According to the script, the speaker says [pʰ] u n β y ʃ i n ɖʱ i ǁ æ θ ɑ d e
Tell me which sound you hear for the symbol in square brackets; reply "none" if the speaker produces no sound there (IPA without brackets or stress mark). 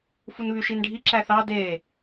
f